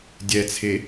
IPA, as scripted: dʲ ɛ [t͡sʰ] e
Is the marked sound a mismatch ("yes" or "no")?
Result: no